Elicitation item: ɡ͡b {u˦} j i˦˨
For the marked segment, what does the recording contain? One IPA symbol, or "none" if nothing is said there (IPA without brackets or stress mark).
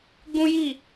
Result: ũ˦